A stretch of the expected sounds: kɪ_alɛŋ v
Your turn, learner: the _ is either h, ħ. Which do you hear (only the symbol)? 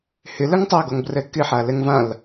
ħ